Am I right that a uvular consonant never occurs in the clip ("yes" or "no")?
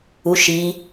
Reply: yes